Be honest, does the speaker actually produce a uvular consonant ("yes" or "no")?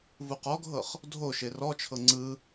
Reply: yes